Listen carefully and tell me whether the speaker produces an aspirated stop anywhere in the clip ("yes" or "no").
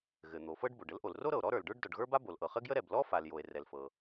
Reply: no